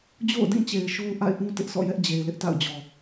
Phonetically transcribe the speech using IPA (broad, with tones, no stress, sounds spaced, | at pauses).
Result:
d͡ʑ o̰˦˨ ʊ̯ d ĩ˦˨ t͡ɕ e˨ ɪ̯ ʃ o˦ ʊ̯ ʔ a̰˦˨ ɪ̯ ʔ ũ˦ t ɪ˦ ʔ sʰ ɔ̰˦˨ j ɛ˦ ʔ d͡ʑ e˨ ɪ̯ l ɪ˦ ʔ t a̰˦˨ ʊ̯ d͡ʑ ɔ˨